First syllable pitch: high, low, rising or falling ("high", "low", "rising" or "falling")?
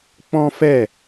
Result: high